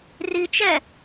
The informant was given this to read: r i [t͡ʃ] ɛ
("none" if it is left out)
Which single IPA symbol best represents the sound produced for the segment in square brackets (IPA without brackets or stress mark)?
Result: t͡ʃ